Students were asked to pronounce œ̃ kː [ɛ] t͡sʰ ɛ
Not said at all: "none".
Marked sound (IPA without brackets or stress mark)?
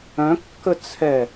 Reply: ə